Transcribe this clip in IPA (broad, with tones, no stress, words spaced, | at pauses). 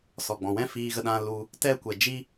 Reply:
sɔ˨ɡ͡bɔ̃˨ wɛ̃˦ fiː˧ɣə˧ɗã˧ lu˧ | tɛ˦kʷɛ˨ d͡ʒi˦